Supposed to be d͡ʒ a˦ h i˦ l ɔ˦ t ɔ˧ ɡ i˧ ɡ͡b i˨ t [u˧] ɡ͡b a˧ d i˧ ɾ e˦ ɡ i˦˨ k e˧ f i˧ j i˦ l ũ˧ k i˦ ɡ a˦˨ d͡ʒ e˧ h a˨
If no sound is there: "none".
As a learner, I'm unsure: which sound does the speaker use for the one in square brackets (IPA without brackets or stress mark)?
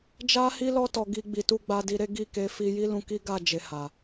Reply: u˧